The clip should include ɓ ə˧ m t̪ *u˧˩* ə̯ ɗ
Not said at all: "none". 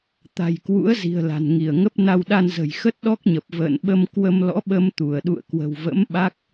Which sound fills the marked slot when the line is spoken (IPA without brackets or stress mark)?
u˧˩